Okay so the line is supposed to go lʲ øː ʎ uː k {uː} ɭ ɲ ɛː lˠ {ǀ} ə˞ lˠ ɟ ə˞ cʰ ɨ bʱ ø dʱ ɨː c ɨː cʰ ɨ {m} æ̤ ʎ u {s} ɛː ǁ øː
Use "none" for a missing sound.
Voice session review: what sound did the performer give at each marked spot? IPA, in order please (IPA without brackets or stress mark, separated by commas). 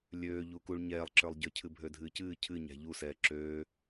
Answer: u, ǁ, ɲ, s